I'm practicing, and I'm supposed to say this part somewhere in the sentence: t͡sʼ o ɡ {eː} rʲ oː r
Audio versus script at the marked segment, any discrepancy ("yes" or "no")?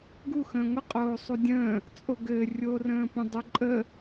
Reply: yes